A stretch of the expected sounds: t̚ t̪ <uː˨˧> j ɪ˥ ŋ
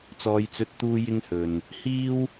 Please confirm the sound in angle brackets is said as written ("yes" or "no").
no